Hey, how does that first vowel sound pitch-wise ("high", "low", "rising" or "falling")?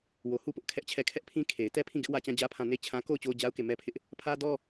low